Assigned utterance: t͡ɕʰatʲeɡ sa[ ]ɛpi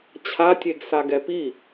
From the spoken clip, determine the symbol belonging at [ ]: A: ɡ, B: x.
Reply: A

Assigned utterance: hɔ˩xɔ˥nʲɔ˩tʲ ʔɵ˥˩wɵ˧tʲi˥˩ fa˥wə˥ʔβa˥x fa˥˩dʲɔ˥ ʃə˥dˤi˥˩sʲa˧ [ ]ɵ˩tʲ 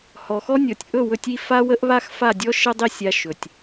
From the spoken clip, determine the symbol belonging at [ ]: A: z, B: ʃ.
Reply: B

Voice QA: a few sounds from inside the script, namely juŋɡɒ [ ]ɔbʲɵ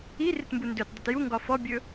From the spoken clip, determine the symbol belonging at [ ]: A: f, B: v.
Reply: A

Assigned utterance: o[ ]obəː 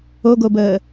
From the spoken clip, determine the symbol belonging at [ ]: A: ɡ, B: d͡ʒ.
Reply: A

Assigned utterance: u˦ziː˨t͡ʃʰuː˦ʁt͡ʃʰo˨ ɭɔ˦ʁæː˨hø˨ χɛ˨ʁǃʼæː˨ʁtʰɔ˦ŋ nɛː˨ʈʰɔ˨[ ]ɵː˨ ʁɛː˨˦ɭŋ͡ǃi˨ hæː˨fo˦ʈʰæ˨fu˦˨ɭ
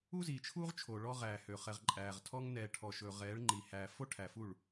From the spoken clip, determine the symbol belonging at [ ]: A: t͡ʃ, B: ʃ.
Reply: B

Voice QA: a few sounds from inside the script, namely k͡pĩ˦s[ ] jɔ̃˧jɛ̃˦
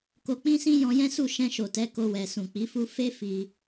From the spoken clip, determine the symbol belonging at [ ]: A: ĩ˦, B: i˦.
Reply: A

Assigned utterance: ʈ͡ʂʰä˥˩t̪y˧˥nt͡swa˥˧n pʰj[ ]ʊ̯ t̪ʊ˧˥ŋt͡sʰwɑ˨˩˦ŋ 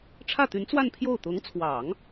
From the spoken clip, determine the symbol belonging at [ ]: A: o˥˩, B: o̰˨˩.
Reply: A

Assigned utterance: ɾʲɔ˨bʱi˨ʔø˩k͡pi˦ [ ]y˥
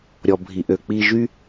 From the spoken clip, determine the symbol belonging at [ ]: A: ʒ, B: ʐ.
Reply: A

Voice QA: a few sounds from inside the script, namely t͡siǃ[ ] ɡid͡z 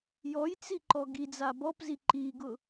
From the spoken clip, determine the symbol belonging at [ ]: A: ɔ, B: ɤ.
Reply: A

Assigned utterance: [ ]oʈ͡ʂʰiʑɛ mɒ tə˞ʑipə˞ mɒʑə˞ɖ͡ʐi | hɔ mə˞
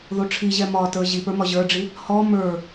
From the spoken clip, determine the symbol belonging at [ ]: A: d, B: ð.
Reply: B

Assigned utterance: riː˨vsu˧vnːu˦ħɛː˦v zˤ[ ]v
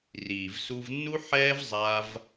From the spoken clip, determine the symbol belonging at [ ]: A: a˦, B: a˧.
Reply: A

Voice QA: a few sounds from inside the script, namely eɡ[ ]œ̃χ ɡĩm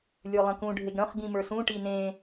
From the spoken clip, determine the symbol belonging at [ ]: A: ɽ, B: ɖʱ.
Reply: A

